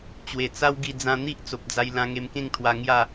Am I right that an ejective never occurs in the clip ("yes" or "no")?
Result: yes